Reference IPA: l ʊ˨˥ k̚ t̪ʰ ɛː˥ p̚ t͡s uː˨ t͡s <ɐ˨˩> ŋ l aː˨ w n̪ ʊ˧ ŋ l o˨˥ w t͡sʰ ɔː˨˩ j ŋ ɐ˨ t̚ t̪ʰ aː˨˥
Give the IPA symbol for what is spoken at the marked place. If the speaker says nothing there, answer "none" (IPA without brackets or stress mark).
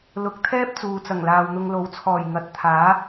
ɐ˨˩